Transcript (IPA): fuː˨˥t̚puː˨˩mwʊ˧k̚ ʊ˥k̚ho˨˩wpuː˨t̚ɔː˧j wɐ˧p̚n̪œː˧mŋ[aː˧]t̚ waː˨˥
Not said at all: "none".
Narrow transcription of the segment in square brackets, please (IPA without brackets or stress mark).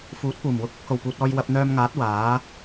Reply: aː˨˥